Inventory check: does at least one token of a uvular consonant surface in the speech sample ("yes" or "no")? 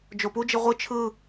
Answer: yes